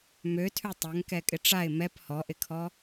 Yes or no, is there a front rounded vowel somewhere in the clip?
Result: yes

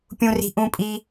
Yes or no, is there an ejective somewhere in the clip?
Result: yes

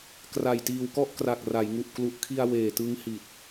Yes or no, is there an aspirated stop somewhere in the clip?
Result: yes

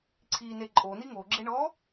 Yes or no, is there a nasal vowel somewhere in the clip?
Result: no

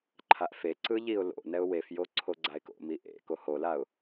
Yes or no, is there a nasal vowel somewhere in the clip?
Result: no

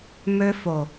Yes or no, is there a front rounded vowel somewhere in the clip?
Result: yes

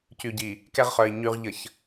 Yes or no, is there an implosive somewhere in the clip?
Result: no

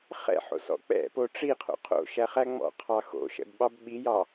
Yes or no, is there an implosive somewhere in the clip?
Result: yes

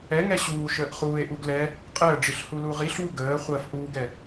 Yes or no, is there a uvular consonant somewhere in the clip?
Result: yes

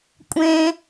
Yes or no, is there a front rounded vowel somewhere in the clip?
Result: no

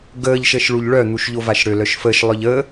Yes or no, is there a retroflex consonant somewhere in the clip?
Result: yes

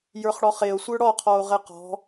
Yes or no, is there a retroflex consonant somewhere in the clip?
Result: yes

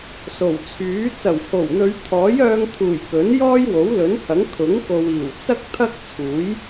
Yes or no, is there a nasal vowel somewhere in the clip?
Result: no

